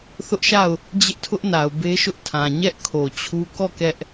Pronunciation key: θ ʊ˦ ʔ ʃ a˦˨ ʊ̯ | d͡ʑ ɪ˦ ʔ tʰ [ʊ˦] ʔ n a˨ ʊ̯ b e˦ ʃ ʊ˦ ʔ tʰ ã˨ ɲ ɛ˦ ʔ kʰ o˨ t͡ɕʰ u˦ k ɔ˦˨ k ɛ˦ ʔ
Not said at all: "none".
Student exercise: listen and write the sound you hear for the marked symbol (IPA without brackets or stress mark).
ʊ˦